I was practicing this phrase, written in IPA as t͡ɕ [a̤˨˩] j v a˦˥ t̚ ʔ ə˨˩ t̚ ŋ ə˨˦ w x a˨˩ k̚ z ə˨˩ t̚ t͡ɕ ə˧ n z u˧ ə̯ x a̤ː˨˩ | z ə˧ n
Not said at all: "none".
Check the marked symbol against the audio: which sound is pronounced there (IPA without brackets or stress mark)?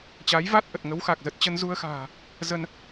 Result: a˨˦